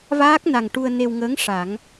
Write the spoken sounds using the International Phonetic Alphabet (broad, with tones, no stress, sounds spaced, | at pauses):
v aː˦˥ k̚ n a˨˩ ŋ ʈ u˧ ə̯ n e˧ w ŋ əː˧˥ ŋ ʂ a˨˩˦ ŋ